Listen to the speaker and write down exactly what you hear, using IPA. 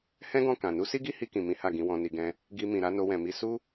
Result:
h ɛ̃˦ ɡ ɔ̃˦˨ k ã˨ n u˨˦ s i˦ ɡ i˦ h i˧ k ĩ˨ m ĩ˨˦ h a˦˨ ɡ ĩ˨˦ w ɔ̃˧ n i˧ ɡ ɛ̃˧ | ɡ i˧ m ĩ˨ ɾ a˧ n o˧ w ɛ̃˨ m i˧ s u˦

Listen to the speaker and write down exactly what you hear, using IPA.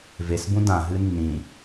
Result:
v e s b ũ d ã ɦ ɨ nː ĩ

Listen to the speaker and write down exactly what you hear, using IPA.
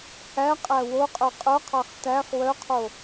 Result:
h æ qʼ æ w o qʼ œ qʼ œ qʰ ɑ χ t æ χ w œ qʰ o

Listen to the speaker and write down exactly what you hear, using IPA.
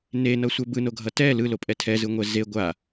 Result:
n e n ʌ sʷ ɛ b ɯ n o ɡʱ ʌ t ɛ l ɯ l o pʼ ɛ tʰ ɛ z ɯ ŋʷ ɛ z e ɡʷ a

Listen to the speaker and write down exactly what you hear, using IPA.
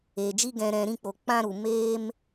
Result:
eː˨ d͡ʒ i˧ ɡ ɛ̃˨ ɾ ɛ̃˨ ɾ ĩ˧ k͡p o˨ k͡p ã˧ ɾ u˨ m eː˧ m

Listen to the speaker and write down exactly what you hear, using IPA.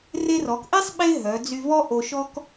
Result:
r e˧ r ɔ˩˧ k ʔ e˥ sˤ ɓ e˥ ɦ œ˩˧ d͡z y˧ v ɔ˥ ʔ o˧ ʃ ɔ˥ k

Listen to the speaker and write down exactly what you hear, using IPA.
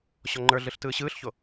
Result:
ɕ ɔ ŋ͡ǃ ə˞ ɮ ɯ ɬ t ɯː ɕ ɯː ɬ ç o

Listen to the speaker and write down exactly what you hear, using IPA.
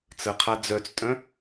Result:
t͡s ə qʰ a d͡z œ t͡s tʼ œ̃

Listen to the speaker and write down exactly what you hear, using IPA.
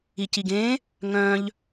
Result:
i c i ɡ ẽ | ŋ œ̃ ʎ

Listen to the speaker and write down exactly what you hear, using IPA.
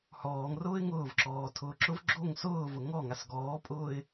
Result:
h ɔː ŋ r ʊː ɪ̯ ŋ ʊː v ǁ ɔː tʰ ʊː ǁ ʊ v ɡ͡ǁ o ŋ s ʊː v ʊ ŋ ɔ ŋ a s ɡ ɔː pʼ ʊː ɪ̯

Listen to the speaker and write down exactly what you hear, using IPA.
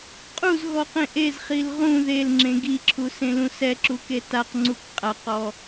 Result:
qʼ u z ɣ ɔ q ẽ ʔ e z χ i l ʁ ũ ð e l ŋ͡ǁ ẽ ɡ i ǁʰ u s ẽ l ũ s ɛ ǁ u k e t a q ŋ͡ǀ u k qʼ a q ɔ

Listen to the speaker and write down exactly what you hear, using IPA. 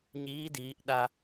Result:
ɲ iː˧˥ d iː˩˧ ʔ ɗ a˧

